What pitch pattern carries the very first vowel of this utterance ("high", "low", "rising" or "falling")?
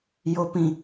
low